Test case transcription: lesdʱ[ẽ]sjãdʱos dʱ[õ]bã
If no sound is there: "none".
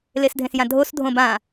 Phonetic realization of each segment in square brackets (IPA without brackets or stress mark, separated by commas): ẽ, õ